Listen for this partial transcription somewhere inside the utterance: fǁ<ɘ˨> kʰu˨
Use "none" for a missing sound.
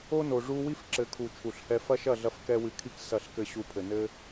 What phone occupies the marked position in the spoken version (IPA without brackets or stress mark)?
ɘ˨